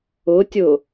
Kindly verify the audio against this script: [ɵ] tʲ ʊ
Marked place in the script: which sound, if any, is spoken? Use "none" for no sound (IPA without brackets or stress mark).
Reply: ʊ